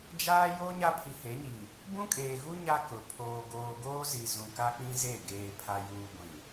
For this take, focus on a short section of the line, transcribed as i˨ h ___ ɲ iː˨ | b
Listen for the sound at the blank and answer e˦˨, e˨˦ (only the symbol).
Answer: e˨˦